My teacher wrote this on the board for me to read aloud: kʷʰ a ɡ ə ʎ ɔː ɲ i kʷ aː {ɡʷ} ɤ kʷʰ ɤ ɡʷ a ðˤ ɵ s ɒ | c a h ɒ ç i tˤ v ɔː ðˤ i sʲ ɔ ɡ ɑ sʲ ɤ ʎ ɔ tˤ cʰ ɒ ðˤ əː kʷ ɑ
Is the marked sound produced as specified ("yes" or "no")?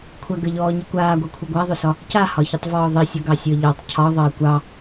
yes